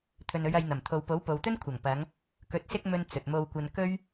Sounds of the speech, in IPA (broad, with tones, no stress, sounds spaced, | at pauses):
t̪ʰ ɵ˨ n ɵ˨˧ ɥ ɐ˧ j n̪ ɐ˨˩ m t̪ʰ o˨ w p o˨˥ w p o˨ w t̪ ɵ˥ n kʷʰ ɐ˨˩ ŋ p ɐ˨˧ ŋ | k ɵ˨ t̚ s ɪ˥ k̚ m ɵ˧ n t͡s ɵ˨ t̚ m o˧ w kʷ ɐ˧ n k ɵ˥ ɥ